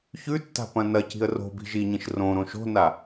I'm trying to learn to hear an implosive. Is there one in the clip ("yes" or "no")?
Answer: no